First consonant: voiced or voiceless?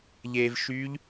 voiced